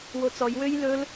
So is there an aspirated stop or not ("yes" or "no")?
no